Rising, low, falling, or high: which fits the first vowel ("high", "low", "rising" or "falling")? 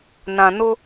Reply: low